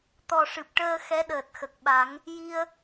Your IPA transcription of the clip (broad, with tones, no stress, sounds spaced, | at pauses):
t̪ ɔ˨˩ ʂ ɨ˨˩ p̚ ʈ əː˧ x ɛ˧˥ ɗ əː˨˩ t̚ x ə˨˩ k̚ ɓ a˨˩˦ ŋ | j i˧ ə̯